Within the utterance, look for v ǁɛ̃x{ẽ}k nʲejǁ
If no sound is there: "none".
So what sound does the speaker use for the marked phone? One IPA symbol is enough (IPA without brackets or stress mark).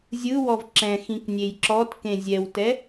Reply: ĩ